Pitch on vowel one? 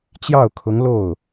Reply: falling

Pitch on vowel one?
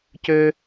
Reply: high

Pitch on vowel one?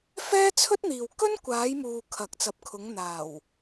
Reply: high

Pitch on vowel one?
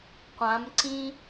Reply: rising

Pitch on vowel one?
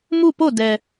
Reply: falling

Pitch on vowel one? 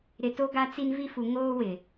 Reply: low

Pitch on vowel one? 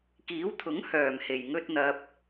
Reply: rising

